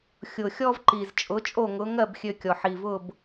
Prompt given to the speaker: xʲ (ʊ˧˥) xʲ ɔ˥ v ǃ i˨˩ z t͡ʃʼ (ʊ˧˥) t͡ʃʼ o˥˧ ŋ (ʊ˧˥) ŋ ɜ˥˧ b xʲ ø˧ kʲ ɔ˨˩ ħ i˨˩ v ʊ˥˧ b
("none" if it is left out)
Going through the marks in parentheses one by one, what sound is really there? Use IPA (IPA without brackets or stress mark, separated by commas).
ʊ˨˩, ʊ˧˥, ʊ˧˥